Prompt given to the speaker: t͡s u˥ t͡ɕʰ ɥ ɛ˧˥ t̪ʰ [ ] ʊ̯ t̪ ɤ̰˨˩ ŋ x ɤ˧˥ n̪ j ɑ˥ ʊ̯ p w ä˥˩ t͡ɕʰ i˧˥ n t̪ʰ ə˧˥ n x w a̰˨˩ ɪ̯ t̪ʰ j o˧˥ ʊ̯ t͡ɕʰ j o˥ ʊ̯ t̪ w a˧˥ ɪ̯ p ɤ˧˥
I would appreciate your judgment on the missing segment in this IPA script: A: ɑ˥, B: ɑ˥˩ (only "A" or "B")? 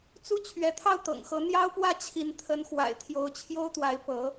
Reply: B